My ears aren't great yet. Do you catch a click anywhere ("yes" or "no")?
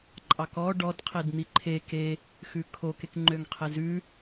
yes